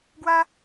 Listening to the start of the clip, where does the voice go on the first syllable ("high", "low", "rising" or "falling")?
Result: high